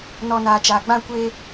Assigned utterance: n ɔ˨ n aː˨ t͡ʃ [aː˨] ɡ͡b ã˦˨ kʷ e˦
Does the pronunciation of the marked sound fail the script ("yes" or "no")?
no